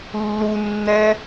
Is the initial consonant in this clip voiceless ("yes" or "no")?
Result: no